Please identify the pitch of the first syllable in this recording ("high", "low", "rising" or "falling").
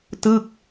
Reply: falling